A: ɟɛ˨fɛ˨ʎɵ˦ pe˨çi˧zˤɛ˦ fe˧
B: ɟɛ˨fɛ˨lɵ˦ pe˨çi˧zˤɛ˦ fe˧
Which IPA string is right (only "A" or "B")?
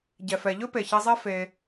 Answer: A